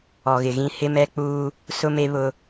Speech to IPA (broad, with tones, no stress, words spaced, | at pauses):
ɔ˨ɣɪ˨ɣĩ˦ hɪ˦mɛ˦k͡puː˦ | sʊ˦me˦ βʊ˦